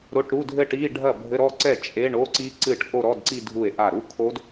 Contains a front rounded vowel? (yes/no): no